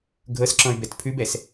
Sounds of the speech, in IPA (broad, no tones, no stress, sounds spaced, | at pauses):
ɡʱ ɤ s ǁ ɔ̃ y̯ b ɛ t pʰ ʉ b ɛ s